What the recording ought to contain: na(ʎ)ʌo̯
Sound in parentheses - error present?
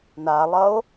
yes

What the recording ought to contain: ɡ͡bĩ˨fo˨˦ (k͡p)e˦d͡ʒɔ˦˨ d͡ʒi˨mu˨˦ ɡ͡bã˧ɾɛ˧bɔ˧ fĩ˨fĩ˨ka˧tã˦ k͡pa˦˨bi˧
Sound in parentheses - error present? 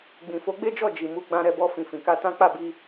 yes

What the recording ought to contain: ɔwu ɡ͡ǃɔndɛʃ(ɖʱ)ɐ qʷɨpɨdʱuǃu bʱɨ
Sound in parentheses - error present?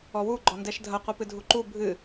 yes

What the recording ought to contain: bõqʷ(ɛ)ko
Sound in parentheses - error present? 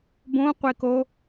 yes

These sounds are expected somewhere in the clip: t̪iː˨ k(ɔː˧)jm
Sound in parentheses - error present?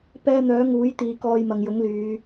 no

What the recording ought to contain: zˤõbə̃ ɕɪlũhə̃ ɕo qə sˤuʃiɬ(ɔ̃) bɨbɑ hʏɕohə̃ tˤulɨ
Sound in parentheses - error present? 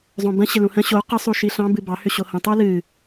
yes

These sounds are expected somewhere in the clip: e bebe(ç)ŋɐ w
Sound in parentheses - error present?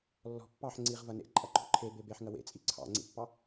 yes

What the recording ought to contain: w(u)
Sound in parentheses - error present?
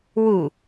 no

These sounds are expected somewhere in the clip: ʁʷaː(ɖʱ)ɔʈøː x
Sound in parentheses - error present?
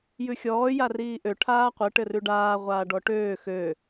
yes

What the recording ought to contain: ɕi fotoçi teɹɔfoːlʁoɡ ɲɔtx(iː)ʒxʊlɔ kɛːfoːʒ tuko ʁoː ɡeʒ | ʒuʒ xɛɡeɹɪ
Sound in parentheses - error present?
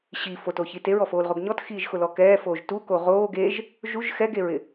no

